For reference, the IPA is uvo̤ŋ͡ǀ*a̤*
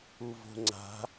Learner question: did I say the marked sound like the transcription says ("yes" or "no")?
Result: yes